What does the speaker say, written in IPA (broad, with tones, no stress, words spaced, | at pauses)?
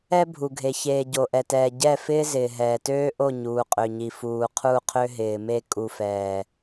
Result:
ɛ˦bʱu˨ɡʱe˨ çeː˨ ɟo˨ʔɛ˨tɛː˨ ɟɛ˦˨fɪː˦ zɪː˨ɦɛː˨ tøː˦ʔo˦˨ ɲuː˨qʼø˨ɲi˨ fuː˨qʰu˦˨qʰø˦ ɦɪː˨me˦ kʼu˨fɛː˨